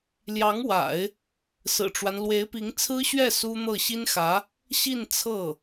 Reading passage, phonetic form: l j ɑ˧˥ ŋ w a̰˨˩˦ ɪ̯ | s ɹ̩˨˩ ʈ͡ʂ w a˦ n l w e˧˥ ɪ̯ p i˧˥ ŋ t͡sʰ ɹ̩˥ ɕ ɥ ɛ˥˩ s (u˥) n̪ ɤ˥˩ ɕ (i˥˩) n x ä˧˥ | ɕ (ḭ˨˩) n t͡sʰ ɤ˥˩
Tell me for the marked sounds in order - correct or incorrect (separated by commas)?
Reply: correct, incorrect, incorrect